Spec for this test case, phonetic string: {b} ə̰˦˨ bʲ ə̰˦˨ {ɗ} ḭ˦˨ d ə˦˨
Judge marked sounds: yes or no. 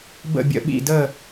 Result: yes, no

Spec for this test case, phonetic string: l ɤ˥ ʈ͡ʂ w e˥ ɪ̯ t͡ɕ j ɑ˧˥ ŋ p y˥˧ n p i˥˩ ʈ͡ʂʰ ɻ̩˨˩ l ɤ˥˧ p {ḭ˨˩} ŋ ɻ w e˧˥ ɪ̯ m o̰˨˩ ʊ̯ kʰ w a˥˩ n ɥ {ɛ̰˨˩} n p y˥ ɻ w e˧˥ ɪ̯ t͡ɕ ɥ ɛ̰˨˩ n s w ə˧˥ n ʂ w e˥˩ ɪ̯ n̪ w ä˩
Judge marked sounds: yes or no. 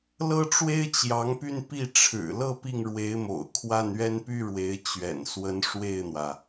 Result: no, no

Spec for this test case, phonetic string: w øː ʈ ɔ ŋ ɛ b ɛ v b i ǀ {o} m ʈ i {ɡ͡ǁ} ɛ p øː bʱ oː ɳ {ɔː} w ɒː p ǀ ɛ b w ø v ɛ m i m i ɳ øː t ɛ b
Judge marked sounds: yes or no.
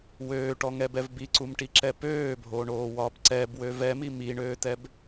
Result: no, no, no

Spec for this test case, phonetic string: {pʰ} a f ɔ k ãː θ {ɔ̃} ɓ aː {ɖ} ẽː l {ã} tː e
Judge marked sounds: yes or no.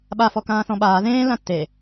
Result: no, yes, no, yes

